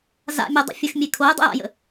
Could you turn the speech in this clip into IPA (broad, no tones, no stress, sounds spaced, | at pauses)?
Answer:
z a̰ mʲ e dˤ ə̰ fʲ ə x mʲ e kʰ o j dˤ ə̰ j a̰ j ə̰